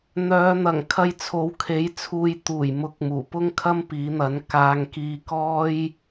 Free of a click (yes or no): yes